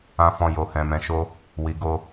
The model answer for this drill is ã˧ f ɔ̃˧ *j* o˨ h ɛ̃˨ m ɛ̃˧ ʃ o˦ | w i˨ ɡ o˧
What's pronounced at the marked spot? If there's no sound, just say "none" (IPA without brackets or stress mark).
j